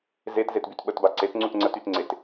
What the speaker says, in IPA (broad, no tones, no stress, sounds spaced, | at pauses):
z e t z e t b y t ɓ ə t b a ǀ e t ŋ͡ǀ u t ŋ͡ǀ ə t y t ŋ͡ǀ e t